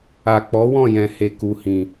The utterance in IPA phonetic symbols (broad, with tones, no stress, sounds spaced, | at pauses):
a˨ k͡p ɔ˨˦ w ɔ̃˦˨ j ɛ̃˨ h e˨ k u˨ h ĩ˨